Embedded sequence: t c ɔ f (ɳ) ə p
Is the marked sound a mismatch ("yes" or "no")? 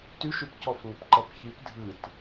yes